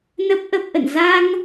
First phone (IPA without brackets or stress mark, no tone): n